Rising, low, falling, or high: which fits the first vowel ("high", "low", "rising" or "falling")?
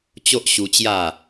high